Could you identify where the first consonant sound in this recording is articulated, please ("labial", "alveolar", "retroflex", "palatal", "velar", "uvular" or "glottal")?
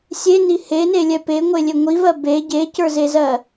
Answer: alveolar